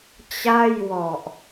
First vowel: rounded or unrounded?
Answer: unrounded